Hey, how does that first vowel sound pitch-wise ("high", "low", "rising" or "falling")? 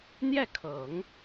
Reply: falling